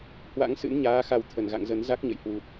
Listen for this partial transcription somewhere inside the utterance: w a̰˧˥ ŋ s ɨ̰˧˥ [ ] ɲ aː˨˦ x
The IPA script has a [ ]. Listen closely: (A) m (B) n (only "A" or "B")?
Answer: B